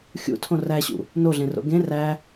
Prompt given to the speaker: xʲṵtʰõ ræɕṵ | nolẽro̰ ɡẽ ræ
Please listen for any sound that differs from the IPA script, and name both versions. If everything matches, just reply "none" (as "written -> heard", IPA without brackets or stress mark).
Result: l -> ɮ